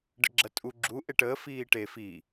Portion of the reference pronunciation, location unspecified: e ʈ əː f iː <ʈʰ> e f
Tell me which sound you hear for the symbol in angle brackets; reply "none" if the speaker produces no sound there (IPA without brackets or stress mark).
ʈ